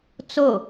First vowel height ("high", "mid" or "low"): mid